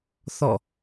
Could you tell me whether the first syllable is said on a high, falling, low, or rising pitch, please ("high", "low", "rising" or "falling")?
falling